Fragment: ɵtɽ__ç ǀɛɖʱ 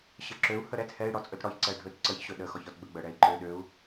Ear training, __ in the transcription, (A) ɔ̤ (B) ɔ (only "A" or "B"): B